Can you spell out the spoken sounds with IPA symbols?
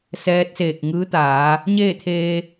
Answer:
s ɛː˧˥ t̚ s eː˧˩ k̚ ŋ ɯː˧˥ t̪ aː˩˧ | ɲ eː˥˨ t̪ʰ eː˧

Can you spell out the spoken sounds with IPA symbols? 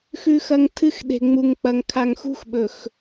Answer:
x ʉ˦ x ɐ˦ ŋ tʰ ɨ˦ x ɗ e̤˨ ŋ͡m u˨ ŋ k͡p ɐ˨ ŋ kʰ a˨ ŋ x ṳ˦ x ɓ ɵ˨ x

